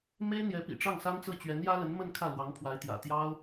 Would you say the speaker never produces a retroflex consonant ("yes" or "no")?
no